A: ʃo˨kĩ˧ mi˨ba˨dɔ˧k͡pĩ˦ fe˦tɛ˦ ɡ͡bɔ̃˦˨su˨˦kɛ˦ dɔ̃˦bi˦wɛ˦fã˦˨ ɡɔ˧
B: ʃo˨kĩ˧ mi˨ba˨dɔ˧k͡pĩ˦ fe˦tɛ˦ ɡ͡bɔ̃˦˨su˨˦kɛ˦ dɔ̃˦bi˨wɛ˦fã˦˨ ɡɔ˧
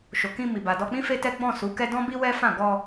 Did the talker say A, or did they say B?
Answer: A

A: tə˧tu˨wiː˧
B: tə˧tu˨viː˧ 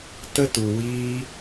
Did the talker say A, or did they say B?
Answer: A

